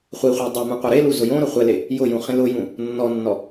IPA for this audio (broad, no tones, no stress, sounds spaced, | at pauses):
χʷ i χʷ e dˤ ɛ m ũ qʷ a ɾ e l u z ʊ j õ ɾ ʊ χʷ ɛ l e | j ʊ j ũ χ ĩ l ʊ j ũ | nː ɔ nː ɔ